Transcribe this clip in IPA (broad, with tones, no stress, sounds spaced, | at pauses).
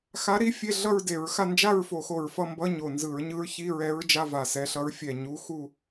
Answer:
x a˧˥ ɾ i˧˥ fʲ e˧˥˧ ɮ ʌ˥˧ ɹ d e˧˩˧ ɹ x a˥˧ n d͡ʒ a˥˧ ɹ f o˧˩˧ x o˨˩ ɹ f ʌ˥˧ m b ʌ˧˥˧ ɲ o˨˩ n z ɯ˧˩˧ ɹ ɲ ɯ˧˥ ɹ ç i˧˥˧ ɹ ɛ˧˥ ɹ d͡ʒ a˧˥˧ v a˨˩ s ɛ˧˥ ɬ ʌ˧˥ ɹ fʲ ɛ˨˩ ɲ u˧˥ x u˥˧